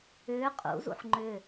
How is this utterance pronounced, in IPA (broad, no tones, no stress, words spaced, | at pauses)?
ʏː qʼṵzṵħ ŋ͡ǃʏ